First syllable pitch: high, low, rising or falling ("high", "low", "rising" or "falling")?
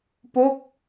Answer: falling